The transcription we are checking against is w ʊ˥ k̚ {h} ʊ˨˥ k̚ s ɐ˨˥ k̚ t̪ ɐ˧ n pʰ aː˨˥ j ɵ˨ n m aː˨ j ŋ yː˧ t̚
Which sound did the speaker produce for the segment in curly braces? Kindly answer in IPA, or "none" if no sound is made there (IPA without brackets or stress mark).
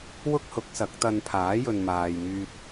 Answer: h